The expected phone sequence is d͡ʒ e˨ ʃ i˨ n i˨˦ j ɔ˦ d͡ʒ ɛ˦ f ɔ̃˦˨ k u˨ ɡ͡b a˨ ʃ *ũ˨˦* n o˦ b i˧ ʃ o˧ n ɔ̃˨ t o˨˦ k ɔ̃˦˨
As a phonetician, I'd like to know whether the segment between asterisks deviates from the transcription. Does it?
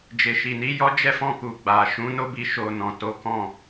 no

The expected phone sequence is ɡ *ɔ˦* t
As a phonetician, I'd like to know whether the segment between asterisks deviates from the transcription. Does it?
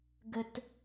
yes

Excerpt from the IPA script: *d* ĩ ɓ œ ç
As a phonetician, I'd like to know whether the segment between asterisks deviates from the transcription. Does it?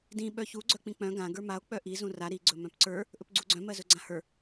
no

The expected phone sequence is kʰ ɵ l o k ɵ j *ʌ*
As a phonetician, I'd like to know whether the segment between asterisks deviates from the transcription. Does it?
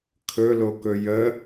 yes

